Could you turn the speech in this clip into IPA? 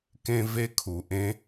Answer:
k ẽ˦ v e˦ kʰ u˨ ʔ ẽ˦

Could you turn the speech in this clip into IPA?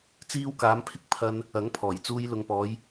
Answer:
t͡s iː˧ w k aː˨˧ m pʰ ɪ˧ k̚ pʰ ɐ˧ n | ɐ˨˥ ŋ pʰ ɔː˨˩ j t͡s uː˧ j l ʊ˨ ŋ p ɔː˨˧ j

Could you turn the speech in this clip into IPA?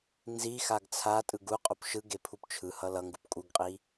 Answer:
n z i x a ɡ t͡sʰ a tʼ ɯ ɡ u qʼ o p ʃ ɯ ɡ e pʰ u p t͡ʃʰ ɯ h ʌ l ʌ ŋ ɡ u p kʼ u ɡ qʼ i

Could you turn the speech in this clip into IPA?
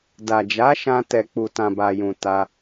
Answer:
d a˨ d͡ʒ a˨˦ ʃ ã˧ t ɛ˨ k͡p u˨ t ã˨ b a˨ j ũ˨ t a˧

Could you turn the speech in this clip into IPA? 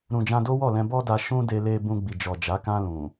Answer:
ɾ ũ˨ d͡ʒ ã˧ d o˦ w ɔ˦˨ l ɛ̃˧ b ɔ˦ d a˧ ʃ ũ˦ d e˧ l e˧ b ũ˧ ɡ͡b i˨ d͡ʒ ɔ˨ d͡ʒ a˨˦ k ã˧ l ũ˨

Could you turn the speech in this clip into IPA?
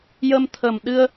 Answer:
j ə˧ m t̪ʰ ə˨˩ m ɗ ɨ˧ ə̯

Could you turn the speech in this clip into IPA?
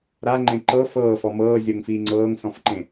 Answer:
ɾ a ŋ͡ǃ ẽ ǃ ɤ f ɤː f ɔ m ɤː zʲ ɤ ŋ f iː ŋ͡ǀ ɤː ŋ s ɔ̃ f ǃ ẽ

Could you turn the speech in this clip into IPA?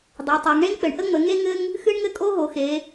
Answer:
dˤ e˩˧ tˤ a˩˧ ŋ ɳ e˥ ŋ k͡p ɘ˩˧ ɳ ʔ ə˥ ŋ͡m ə˩˧ ŋ e˥ ŋ ɘ˥ ŋ | x ɨ˥ ɳ ŋ ɘ˥ kʼ o˥ ɦ o˩˧ x e˩˧

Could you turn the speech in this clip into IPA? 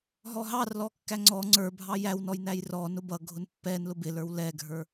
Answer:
ɦ ɔ ɦ ɑ r l ɔ kː æ ŋ͡ǀ ɔ ŋ͡ǀ ə˞ bʱ ɑ j æ w n ɔ j n æ j r ɔ n ʊ b ʌ ɡʱ ʊ n pː ɛ n l ʊ b ɪ l ə˞ w l ɛ ɡʱ ə˞

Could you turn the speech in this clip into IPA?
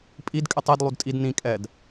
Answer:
pʼ i d kʼ ɪ tˤ i d lˠ u d tʼ i d n ĩ kʼ ɛ d

